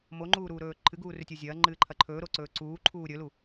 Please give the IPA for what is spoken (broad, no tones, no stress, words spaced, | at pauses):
moŋ͡ǃuːɾuːɾɵː ǃʰɨɡuːrʉtʲo zʲɐːŋ͡ǃɨːǃʰɐ ǃʰɵːɾoǀɵː ǀuːǃʰuː ɾʲɵlu